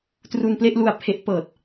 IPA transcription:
t r u˧ n p l e˥˩ ʔ l u˧ a̯ pʰ e˦˥ ʔ p ɤː˨˩ t̚

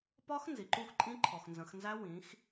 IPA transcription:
p ɒ˦˥ x n z i˩ ǃ u˥˩ x ǃʼ ĩ˦˥ ǃʰ ɔ˩ x n z ə̃˩˧ x n z æ˦˥ w ĩ˩˧ x

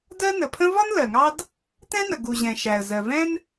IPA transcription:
d ɜ˥ n ə˩ pʰ ə̃˥ v ɒ˥ n l ɜ˩ ŋ ɑ˥ d | t ɛ̃˥ n ə˩ ɡ u˩ ʑ ɛ̃˩ ʃ æ˩ ə̯ z ɜ˩ v ɛ̃˥ n

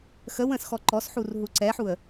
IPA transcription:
x ə w ə̃ s x ɔ ǃ ɔ s ħ u r ɦ u ǀ ɛ ħ u ə̯

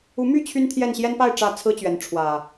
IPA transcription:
u˨˦ m y˥˨ t͡ɕʰ y˦ n t̪ʰ j ɛ˥˨ n ɕ j ɛ˦ n p a˥˨ ɪ̯ ʈ͡ʂ ä˥˨ t͡sʰ ɹ̩˦ t͡ɕ ɥ ɛ˨˦ n ʈ͡ʂʰ w ä˨˩

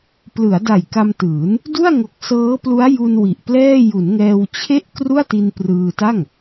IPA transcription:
p l ɯ˩˦ a̯ d a˨˩ j k a˧ m t ɯː˩˦ n | d u˥˩ a̯ ŋ o˨˩ k̚ s ɤː˦˥ p l u˦˥ a̯ j u˧ n w i˨˩ ʔ p l ɛː˥˩ j u˩˦ n ŋ ɛː˧ w t͡ɕʰ e˥˩ ʔ k r u˥˩ a̯ t i˧ n p r ɯː˧ t a˥˩ ŋ

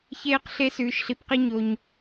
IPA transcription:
ç eː˥ q ɬ e˥ s ʉː˦ ʃ ɬ i˦ p q i˥ ɲ o˥ ɲ

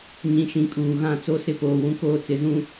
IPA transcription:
ɲ ĩ˨ ʃ ĩ˨ kʼ uː˨ ɣ ã˦˨ t͡s o˦ s ɪ˦ p oː˨ w ũ˨ k oː˦ t͡s ɪ˨˦ z ũ˦

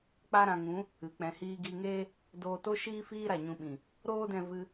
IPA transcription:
k͡p a˧ ɾ ã˨ ŋ ũ˨˦ | ɨ˨ k͡p ɛ̃˨ h iː˧ ɡ i˧ ŋ eː˦ | d oː˧ t o˦ ʃ iː˦ f iː˦ ɾ a˨ ɲ ũ˧ ɓ ĩ˨ | ɾ oː˦ d ɛ̃˧ v ɨ˧

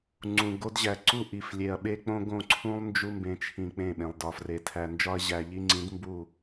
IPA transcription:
ŋ͡ǀ ũ˨ ɡ o˦ d ʑ æ˨ ǀ u˦ ʔ i˨ f lʲ e˨ ɐ̯ ɓ e˦ k͡p õ˦ ɡ õ˦˨ ǀʰ ũ˦ lˠ n d͡ʒ u˦ m b ẽ˨ t͡ʃʰ ĩ˨ k͡p ẽ˦˨ ɓ ẽ˨ lˠ d ɒ˨ f r e˨ tʰ æ˨ n d͡ʒ ɒ˦ ɐ̯ ʑ æ˨ ʎ i˦ ŋ͡ǀ ĩ˨˦ d m b u˦˨

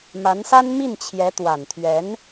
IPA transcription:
m a˧˥ n s a˥ n m i˥˩ n t͡ɕʰ j ɛ˧˥ t̪ w a˨˩ n t̪ʰ ɥ ɛ˧˥ n

